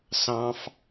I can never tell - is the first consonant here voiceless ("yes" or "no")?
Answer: yes